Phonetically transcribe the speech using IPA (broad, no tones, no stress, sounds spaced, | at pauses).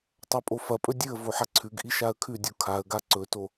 tˤ a pʼ o f ɐ pʼ ɵ dʲ ɨ ə̯ v o ħ a ǀʰ ʉ ɡ ʔ i ʃ a ə̯ kʰ ʉ dʲ u kʰ a ə̯ ɡ a ǀ ɵ t o